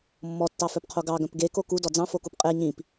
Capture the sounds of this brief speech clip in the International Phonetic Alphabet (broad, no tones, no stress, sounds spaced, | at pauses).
mː ɔ tː ɑ f œ p qʰ o ɡ ɑ ɡ œ̃ p ɡ e k o k u d ɔ d͡z ɑ̃ f o k u p qʼ e ɲ ĩ p